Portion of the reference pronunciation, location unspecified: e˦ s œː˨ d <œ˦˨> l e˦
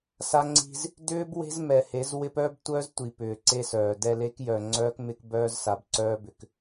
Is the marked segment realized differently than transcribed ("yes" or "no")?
yes